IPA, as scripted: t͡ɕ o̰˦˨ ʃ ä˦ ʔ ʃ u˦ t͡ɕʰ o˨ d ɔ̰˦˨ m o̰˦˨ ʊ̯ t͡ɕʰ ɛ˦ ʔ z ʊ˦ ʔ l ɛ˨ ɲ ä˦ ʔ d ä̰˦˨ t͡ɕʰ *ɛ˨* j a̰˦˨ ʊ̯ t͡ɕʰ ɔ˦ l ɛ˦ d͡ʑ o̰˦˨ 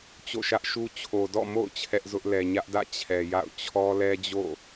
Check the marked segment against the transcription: correct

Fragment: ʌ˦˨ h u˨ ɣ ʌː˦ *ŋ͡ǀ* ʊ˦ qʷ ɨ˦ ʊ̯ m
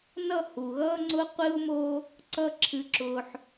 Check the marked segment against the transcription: correct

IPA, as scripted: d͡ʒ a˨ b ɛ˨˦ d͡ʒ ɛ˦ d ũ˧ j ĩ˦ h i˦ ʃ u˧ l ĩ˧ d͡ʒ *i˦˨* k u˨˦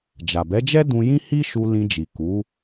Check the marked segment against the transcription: incorrect: i˨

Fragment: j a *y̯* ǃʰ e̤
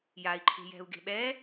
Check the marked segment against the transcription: incorrect: i̯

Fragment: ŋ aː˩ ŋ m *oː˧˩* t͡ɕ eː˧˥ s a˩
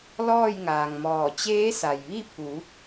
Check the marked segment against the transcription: incorrect: ɔː˧˩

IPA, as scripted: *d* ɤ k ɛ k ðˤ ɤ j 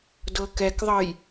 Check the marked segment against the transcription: correct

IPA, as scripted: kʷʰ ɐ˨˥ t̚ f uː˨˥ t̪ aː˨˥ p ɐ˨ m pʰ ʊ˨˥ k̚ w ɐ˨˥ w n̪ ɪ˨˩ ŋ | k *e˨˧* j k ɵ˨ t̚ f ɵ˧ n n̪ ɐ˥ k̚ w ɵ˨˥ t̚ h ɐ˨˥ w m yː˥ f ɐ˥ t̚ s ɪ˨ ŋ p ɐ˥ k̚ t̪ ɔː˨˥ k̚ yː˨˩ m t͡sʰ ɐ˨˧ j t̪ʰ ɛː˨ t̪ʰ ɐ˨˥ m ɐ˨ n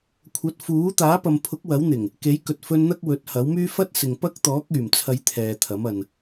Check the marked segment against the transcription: incorrect: e˨˥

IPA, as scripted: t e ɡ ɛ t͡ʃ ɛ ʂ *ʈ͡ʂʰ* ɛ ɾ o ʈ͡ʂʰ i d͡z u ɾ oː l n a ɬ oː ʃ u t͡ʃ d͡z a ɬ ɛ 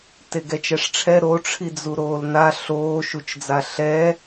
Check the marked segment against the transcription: correct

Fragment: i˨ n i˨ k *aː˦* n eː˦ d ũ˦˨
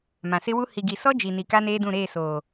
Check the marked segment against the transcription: incorrect: a˦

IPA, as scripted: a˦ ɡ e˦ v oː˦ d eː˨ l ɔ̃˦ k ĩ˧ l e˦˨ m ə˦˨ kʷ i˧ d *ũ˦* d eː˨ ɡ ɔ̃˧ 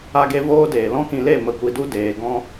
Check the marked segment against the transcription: incorrect: u˦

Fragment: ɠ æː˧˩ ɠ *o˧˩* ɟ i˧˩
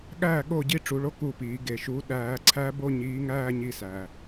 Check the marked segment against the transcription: correct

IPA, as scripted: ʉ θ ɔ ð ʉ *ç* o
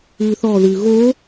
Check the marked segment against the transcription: incorrect: ɣ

